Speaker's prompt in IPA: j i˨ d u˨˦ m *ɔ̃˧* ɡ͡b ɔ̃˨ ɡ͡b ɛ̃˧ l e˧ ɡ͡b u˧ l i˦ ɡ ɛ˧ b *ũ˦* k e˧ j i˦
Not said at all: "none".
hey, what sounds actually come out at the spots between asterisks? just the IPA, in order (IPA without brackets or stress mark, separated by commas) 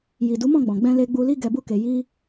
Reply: ɔ̃˦˨, u˦